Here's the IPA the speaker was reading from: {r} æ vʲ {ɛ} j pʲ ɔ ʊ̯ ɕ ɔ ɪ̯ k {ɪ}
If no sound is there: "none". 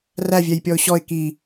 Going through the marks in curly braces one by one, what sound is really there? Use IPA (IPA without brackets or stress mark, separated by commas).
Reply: r, ɛ, i